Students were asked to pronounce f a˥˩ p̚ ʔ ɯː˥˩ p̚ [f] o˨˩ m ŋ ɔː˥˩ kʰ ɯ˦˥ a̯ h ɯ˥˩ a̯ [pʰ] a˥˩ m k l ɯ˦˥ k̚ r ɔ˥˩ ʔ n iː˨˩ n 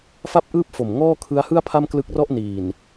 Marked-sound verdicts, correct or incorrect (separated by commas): correct, correct